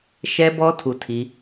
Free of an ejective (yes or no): yes